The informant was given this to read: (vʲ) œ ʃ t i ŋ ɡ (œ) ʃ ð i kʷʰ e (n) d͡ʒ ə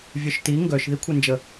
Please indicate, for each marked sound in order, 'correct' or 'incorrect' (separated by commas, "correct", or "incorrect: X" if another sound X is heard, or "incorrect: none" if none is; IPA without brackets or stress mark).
correct, correct, correct